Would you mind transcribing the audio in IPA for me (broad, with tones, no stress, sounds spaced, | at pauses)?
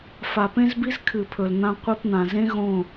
f a˨ p ẽ˦ z b i˦ z kʰ ɨ˨ pʰ ɵ˨ l n̪ ã˧ qʷ i˧ p n̪ ã˨ z ẽ˦ ɣ õ˦˨